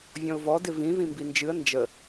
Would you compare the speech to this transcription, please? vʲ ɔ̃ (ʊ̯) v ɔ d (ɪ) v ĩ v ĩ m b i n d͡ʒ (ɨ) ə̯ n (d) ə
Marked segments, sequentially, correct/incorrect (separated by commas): correct, correct, correct, incorrect